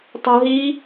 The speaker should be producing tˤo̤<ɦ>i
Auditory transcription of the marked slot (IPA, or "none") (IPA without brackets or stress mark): ɦ